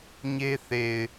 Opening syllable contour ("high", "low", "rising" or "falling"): high